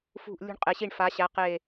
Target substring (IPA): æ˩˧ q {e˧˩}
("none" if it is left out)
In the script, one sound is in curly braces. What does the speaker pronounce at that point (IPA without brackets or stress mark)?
e˧˩